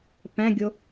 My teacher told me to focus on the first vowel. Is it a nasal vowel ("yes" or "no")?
yes